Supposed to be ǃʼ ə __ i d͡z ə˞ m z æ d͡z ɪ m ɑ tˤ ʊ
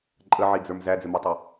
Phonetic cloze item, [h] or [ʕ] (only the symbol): ʕ